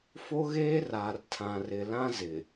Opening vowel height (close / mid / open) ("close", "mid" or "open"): mid